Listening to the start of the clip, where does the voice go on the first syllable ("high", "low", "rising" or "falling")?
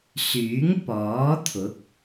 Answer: rising